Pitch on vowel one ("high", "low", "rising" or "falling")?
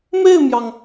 falling